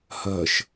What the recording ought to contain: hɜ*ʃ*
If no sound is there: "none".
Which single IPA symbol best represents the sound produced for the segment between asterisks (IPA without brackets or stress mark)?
ʃ